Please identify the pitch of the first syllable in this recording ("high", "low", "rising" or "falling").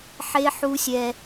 high